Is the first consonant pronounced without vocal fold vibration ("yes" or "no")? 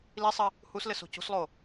no